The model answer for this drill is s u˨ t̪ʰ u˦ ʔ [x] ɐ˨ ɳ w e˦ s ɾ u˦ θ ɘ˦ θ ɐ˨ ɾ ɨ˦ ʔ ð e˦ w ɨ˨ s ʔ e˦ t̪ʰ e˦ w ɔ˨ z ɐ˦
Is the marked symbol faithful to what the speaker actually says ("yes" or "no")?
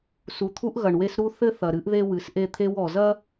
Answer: no